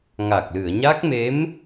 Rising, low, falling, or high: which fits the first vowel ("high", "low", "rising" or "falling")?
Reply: low